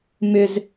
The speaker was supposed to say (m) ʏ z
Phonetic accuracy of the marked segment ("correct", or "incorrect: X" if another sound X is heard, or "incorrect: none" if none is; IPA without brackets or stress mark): correct